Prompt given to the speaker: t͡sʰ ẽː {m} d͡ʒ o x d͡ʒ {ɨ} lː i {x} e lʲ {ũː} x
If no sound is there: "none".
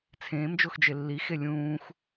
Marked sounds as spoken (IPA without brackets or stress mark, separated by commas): m, e, x, ũː